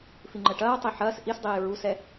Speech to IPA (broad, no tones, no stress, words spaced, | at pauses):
fiŋ͡ǃəʈɐːtˤi ħɐːs ʔisdˤiː ɹusɛ